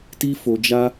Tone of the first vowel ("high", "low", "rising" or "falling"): high